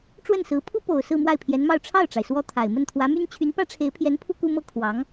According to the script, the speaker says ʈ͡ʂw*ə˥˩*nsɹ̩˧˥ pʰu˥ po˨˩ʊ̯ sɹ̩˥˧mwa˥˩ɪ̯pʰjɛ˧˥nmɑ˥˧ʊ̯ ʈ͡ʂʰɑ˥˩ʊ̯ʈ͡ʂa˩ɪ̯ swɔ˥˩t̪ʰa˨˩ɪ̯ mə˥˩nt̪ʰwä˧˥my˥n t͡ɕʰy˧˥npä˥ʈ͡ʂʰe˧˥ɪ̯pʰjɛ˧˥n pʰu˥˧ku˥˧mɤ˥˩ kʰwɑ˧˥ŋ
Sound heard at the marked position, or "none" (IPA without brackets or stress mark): ə˥˩